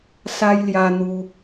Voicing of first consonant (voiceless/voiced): voiceless